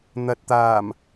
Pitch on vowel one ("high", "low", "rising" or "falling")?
low